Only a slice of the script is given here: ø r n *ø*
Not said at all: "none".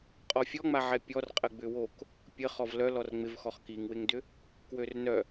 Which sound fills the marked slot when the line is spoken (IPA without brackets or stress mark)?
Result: œ